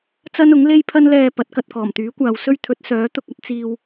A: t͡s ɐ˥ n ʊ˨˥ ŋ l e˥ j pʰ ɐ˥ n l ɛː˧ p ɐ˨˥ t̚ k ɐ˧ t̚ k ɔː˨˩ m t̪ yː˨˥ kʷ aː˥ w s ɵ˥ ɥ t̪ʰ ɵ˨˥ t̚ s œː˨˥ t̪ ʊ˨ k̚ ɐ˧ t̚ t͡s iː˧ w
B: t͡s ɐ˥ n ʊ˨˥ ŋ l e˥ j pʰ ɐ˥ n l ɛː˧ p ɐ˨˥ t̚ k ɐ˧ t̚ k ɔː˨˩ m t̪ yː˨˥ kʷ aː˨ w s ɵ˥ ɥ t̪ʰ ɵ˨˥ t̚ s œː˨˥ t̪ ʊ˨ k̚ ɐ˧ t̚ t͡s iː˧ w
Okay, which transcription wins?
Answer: B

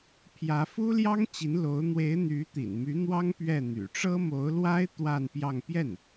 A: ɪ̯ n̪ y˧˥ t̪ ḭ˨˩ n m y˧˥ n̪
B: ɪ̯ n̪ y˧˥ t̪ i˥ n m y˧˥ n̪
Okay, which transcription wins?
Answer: A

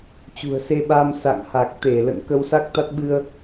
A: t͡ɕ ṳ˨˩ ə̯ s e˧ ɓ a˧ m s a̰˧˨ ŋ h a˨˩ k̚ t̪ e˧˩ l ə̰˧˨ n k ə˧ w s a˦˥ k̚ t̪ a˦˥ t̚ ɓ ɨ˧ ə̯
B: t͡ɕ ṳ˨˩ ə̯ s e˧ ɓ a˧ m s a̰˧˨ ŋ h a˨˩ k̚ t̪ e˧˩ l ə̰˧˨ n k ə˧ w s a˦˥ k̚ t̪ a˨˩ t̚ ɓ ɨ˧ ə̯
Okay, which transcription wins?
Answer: A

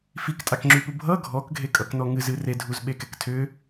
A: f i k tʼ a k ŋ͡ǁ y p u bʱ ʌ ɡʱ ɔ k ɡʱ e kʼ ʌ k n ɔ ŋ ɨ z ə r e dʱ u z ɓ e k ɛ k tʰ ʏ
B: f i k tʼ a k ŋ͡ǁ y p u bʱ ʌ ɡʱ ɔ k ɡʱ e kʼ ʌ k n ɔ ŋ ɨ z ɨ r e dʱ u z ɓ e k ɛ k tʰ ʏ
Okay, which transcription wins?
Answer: B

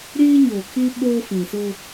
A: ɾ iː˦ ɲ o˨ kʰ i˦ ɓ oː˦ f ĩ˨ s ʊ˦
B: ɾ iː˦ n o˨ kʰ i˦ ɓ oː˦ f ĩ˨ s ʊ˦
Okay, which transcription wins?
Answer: A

